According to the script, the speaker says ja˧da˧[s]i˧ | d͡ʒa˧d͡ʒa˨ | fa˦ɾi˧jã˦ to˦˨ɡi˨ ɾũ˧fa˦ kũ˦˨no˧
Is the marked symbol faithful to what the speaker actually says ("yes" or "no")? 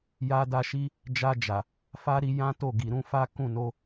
no